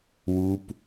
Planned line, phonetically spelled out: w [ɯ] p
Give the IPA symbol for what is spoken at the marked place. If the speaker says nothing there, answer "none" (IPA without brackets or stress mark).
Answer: u